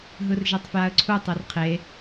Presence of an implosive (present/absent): absent